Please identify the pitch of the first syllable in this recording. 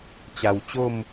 low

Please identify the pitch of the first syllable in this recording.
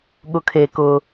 low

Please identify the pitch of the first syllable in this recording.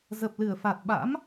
low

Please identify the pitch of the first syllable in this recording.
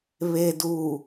low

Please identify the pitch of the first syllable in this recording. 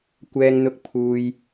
low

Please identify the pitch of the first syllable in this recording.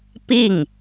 falling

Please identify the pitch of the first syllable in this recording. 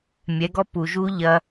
rising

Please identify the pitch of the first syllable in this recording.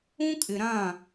high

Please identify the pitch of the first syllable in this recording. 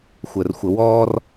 low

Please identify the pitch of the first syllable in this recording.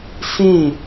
falling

